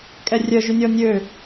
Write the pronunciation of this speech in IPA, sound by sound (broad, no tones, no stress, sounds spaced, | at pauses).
kʼ ɛ rʲ œ ʒ y nʲ ɔ nʲ ø